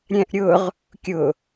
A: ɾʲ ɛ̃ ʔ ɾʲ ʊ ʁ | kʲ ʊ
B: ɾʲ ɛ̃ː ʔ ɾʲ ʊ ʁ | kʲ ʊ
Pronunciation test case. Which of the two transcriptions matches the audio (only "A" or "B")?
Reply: A